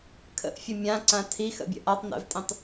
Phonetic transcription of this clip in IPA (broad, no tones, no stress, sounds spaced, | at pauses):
kʰ ə̰ ʔ fʲ ə mʲ ã ǀ ã tʰ i x ə̰ bʲ ə̰ ʔ a tˤ n ɛ̰ v tʼ ĩ tˤ